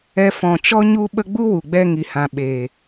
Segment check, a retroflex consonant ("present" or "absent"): absent